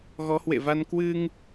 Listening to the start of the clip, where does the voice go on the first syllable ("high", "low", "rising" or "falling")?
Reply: rising